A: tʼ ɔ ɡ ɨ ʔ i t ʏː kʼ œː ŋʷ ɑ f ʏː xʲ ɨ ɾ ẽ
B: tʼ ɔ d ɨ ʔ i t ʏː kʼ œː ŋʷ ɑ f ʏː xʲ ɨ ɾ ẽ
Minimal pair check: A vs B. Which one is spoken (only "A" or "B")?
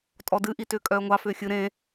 B